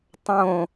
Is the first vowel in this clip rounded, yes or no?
yes